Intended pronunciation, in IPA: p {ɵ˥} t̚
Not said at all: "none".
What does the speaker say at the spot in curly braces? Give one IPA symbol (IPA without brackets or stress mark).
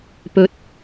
ɵ˨˥